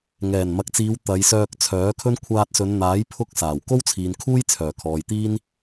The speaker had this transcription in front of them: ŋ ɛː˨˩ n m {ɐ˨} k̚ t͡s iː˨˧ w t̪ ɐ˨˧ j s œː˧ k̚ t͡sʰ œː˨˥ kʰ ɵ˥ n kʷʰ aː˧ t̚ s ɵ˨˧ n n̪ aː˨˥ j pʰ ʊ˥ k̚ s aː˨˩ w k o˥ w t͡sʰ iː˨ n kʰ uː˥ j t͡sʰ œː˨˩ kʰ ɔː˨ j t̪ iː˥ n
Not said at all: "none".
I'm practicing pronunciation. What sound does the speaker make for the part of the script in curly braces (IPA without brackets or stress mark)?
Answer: ɐ˨